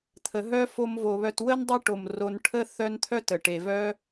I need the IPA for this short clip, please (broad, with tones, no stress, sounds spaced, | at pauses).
t̪ʰ ə˩ ɦ œ˦ f o˨ m v o˩ β œ˨ t w ə˥ n dˤ e˦ ʈ o˩ m r o˨ n ʈʰ ə˥ θ œ˦ n t̪ʰ œ˥ t ə˩ ʈ e˩ v œ˦